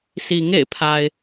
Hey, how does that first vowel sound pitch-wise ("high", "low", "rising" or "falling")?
low